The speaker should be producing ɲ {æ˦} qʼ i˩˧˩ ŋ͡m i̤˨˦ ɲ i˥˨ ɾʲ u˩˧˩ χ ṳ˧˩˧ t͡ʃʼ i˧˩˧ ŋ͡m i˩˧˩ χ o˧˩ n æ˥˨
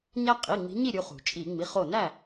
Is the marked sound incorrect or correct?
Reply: correct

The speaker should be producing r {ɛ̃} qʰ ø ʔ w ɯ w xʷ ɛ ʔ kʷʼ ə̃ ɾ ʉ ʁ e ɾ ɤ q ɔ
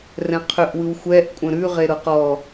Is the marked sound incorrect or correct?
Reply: correct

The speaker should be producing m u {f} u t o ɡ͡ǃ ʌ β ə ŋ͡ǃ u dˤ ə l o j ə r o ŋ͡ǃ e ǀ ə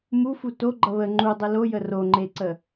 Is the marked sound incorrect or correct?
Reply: correct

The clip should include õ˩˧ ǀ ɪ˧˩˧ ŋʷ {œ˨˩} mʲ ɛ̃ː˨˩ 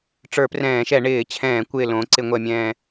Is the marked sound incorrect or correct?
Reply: incorrect: ɛ˨˩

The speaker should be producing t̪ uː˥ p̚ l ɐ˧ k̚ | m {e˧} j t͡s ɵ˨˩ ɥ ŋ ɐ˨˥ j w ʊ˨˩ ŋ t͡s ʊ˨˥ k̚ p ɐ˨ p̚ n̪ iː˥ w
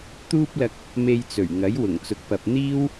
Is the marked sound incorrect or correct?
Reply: correct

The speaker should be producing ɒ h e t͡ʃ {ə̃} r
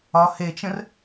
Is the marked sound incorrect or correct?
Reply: correct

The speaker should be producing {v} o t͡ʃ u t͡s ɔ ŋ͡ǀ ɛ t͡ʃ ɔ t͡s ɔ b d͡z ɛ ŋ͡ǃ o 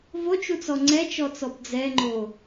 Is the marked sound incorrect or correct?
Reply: correct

